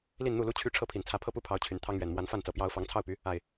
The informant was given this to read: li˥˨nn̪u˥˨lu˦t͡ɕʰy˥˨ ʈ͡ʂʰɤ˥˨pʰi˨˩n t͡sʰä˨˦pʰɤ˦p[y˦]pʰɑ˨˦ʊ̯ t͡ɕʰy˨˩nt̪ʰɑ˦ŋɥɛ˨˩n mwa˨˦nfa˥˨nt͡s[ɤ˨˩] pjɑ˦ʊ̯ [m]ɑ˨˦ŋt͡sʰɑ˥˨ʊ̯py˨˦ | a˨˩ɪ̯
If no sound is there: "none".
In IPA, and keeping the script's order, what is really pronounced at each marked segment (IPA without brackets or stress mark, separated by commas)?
u˦, ɤ˨˩, f